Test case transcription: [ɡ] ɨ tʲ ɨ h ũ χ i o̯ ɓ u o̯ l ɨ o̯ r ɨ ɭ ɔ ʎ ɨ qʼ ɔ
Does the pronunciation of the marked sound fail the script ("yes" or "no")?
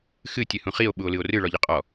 yes